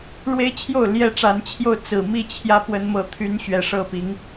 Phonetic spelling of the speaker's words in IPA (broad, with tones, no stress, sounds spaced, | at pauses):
ɻ w e˦ ɪ̯ t͡ɕʰ j o˥˨ ʊ̯ l j ɛ˦ ʈ͡ʂ a˨˦ n t͡ɕʰ j o˥˨ ʊ̯ t͡s ɹ̩˨˩ m i˥˨ t͡ɕʰ j ä˦ p w ə˦ n m ɤ˥˨ t̪ʰ y˦ n ɕ ɥ ɛ˨˩ ʂ ɤ˥˨ p i˨˦ ŋ